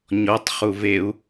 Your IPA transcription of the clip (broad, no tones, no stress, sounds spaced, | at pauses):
ɲ ɔ tˤ χ u v e u̯